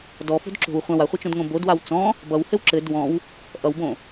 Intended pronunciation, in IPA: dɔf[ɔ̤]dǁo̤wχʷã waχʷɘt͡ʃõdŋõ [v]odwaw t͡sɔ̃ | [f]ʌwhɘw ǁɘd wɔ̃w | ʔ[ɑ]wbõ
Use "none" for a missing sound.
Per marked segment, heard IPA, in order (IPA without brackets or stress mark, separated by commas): o̤, b, b, ʌ